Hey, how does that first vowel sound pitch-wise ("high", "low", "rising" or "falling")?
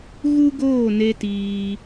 high